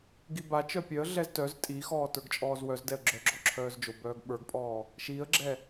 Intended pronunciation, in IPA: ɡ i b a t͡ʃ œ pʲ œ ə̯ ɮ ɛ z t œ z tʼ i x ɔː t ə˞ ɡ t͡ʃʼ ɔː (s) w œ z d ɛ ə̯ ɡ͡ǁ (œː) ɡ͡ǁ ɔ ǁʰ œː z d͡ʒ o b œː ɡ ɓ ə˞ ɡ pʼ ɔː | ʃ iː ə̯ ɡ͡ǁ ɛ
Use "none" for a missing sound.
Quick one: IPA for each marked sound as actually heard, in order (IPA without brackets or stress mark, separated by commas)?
z, œ